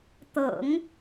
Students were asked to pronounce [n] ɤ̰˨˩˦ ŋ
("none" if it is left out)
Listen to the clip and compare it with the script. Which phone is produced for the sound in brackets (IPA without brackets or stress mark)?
t̪